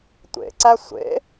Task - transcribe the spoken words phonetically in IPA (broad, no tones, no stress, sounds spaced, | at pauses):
tʷ ḛ ǀ æ sʷ ḛ